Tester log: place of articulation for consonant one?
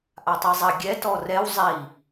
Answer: glottal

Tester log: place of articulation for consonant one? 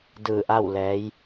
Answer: alveolar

